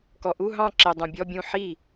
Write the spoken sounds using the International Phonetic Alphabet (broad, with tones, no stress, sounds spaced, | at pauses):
k ɔ˨ ʔ u˧˥˧ ɦ ɑ̃˥˩ ǁ ɪ˨ dˤ ũ˨ bʲ ɔ˧˥˧ bʲ ũ˥˩ ħ i˥˩